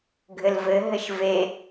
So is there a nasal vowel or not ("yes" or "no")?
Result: no